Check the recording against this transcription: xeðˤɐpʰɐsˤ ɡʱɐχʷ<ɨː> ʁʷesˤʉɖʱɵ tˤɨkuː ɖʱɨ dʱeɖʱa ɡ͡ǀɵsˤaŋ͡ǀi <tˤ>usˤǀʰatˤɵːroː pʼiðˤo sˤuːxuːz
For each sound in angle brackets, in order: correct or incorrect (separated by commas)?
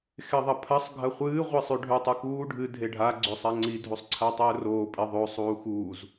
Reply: correct, incorrect